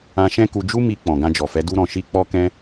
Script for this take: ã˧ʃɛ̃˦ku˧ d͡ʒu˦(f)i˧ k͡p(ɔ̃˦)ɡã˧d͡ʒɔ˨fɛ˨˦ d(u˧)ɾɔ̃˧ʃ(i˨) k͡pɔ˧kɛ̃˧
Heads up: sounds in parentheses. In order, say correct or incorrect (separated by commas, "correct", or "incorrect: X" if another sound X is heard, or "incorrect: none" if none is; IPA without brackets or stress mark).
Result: incorrect: m, incorrect: ɔ̃˨, incorrect: u˦, incorrect: i˦